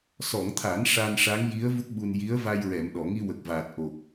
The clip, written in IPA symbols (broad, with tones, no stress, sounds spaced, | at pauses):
s ɔ˨˩˨ ŋ t̪ʰ a˨˩˦ n ʂ a˧ n ʂ a˧˥ ŋ j i˧˥ ə̯ v u˦˥ k̚ ɓ u˧ n j i˧˥ ə̯ v a˧ j ɹ ɛ˨˩˨ m ɗ ɔ˨˩˨ ŋ i˧ w ə˨˩ k̚ v aː˨˩ t̚ ʔ o˨˩ k̚